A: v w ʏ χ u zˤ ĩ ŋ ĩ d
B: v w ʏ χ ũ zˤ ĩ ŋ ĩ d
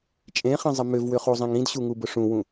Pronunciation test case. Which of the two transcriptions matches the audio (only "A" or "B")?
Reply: A